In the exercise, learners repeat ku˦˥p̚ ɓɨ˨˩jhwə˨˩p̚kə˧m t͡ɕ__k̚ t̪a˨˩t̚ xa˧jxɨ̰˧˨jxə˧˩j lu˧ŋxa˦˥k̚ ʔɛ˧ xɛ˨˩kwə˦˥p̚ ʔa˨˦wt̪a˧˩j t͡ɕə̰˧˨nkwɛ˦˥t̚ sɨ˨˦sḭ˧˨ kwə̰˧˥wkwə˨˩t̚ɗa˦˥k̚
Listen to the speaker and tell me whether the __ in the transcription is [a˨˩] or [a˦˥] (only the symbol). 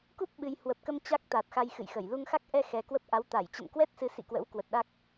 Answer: a˦˥